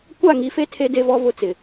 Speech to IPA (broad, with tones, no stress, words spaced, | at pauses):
kʷa˦˨ŋi˨fe˦ tʰe˦de˦vɔ˦ vʊ˦t͡sɪ˨